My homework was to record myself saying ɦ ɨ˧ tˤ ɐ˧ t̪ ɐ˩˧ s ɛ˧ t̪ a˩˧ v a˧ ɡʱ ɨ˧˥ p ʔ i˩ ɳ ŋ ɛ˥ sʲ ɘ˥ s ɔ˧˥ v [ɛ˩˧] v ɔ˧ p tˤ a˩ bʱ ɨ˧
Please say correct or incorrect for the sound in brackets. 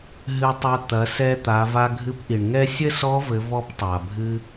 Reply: incorrect